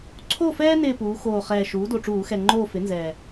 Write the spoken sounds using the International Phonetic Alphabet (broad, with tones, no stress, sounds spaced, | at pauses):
ǀʰ o˦˨ f ɛː˦ n ɪː˦˨ p uː˩˧ x oː˨˩ χ ɛː˨˩ ʃ uː˩˥ d o˨˩ ʈ͡ʂ uː˧˩˧ x ɛ˨˩ ŋ͡ǃ oː˦˨ f ɪ˩˥ n z ɛː˨˩